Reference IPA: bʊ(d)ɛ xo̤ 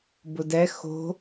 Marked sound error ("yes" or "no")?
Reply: no